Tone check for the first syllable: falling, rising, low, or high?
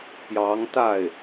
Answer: rising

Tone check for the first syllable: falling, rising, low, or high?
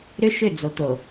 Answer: high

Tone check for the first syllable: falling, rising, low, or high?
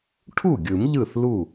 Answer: falling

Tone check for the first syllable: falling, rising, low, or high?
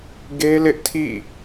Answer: high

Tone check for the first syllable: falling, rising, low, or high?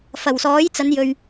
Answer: low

